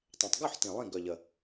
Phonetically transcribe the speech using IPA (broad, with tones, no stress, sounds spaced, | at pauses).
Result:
tˤ ɛ̃˨˩ tˤ ɡ ʉ˥˨ ħ t ĩ˨˩ lˠ ĩ˥˨ ɡ œ˨˩ ʎ ə˨˩